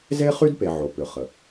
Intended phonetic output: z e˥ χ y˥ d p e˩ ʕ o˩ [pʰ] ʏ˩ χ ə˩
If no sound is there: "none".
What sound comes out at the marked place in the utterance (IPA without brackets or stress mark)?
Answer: p